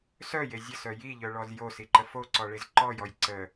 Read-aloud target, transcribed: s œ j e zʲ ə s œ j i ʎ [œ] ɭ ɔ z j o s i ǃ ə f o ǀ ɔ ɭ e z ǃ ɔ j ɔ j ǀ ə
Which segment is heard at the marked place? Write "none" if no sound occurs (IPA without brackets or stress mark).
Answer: œ